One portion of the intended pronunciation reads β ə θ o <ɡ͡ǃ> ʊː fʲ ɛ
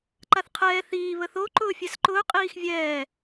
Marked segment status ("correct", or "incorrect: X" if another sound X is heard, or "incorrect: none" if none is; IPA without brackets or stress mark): incorrect: ǃ